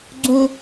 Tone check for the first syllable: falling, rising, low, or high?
high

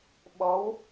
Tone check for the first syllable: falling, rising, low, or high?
rising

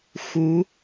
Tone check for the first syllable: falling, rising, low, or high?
rising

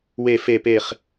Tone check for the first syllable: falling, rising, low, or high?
falling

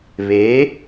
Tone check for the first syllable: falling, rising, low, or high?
rising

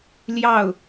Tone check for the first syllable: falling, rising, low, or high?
falling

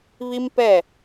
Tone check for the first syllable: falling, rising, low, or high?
high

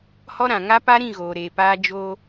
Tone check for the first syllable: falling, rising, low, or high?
high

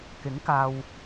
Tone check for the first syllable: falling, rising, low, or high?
rising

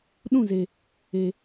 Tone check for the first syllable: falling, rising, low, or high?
falling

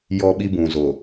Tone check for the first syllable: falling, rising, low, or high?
high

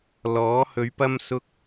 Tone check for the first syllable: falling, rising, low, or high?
rising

